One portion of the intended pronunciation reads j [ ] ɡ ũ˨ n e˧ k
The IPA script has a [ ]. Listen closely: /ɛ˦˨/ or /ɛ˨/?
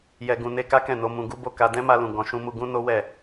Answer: ɛ˨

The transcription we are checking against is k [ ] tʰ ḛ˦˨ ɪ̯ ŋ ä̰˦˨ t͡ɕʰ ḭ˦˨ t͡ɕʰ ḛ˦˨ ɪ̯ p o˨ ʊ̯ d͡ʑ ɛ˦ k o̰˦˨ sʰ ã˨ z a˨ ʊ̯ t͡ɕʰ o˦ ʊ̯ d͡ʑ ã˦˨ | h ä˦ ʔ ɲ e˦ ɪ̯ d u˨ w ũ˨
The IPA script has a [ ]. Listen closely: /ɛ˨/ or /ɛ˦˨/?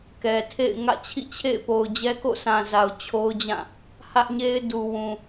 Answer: ɛ˨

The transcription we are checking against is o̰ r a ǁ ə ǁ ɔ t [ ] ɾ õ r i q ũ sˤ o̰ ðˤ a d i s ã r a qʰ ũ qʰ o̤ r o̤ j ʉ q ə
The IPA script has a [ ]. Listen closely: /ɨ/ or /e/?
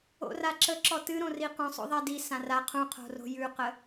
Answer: ɨ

